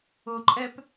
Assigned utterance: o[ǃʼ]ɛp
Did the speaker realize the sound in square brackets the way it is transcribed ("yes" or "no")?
yes